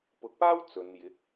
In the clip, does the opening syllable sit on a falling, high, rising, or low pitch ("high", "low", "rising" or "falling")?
low